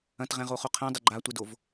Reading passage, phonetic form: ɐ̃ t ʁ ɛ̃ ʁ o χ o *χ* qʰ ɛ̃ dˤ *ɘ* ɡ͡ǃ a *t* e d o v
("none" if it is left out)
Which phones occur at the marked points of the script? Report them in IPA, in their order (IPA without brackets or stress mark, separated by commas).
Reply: none, ɘ, tʷ